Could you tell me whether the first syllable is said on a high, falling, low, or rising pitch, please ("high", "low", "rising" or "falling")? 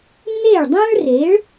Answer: falling